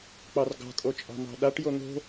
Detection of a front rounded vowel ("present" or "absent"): absent